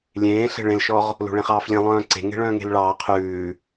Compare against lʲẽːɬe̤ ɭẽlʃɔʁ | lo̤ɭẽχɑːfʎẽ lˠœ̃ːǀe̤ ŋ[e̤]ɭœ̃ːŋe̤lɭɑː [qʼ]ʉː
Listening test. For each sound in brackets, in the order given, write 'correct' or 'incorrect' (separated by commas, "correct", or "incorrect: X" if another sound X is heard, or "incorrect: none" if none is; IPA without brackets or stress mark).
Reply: correct, incorrect: qʰ